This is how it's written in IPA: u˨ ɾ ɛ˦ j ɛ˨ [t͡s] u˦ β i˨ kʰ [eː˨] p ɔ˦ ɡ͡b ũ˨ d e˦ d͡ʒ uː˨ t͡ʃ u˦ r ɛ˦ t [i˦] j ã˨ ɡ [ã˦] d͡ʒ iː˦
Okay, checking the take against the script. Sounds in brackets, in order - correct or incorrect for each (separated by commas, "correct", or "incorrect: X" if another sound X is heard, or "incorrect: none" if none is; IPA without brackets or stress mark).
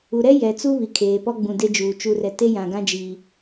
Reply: correct, correct, incorrect: e˦, correct